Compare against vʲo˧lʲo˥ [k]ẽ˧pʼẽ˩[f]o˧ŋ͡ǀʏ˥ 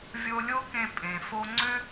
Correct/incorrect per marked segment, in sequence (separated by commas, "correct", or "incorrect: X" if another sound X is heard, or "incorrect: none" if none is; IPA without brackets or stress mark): correct, correct